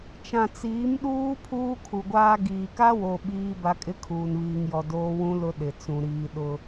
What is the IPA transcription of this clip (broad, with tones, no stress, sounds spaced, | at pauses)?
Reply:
t͡ʃ ã˨ t͡s iː˨˦ m ɗ uː˦ pʰ uː˦ kʰ u˨ ɡʷ aː˦ ɡ iː˨ k a˦ w o˨ ɓ iː˦ b a˦ kʼ ɪ˦ kʰ uː˨ n β iː˨ ŋ j ɔ˨ d oː˦ w ũ˦ l ʊ˦ ɗ ɪ˨ t͡s ũ˨ ɾ iː˨ ɗ ʊ˦